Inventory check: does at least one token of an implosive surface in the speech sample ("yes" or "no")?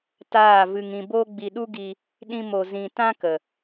yes